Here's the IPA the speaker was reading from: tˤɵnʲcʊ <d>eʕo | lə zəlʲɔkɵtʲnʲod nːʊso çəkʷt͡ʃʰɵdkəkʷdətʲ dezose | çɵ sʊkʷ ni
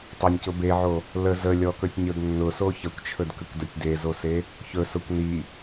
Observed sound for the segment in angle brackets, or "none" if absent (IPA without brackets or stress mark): b